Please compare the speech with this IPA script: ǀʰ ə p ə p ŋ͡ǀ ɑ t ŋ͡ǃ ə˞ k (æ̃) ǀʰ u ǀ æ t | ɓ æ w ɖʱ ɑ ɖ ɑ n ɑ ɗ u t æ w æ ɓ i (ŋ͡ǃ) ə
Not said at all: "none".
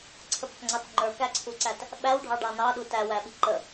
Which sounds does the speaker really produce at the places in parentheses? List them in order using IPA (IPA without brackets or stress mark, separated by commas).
æ, ǃ